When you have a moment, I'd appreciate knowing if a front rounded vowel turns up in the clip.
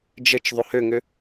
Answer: yes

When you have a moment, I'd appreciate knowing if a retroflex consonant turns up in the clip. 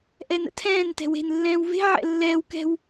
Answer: no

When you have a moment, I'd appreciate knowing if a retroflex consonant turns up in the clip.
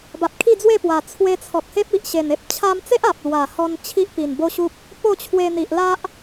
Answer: no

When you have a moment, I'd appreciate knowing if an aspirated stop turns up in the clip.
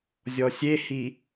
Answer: no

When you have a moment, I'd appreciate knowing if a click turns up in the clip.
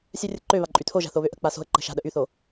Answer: yes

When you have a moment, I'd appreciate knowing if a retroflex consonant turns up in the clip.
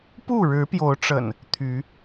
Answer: yes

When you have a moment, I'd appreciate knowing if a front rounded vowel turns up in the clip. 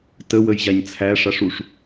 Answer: no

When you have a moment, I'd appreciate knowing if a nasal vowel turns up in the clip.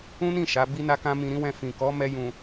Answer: yes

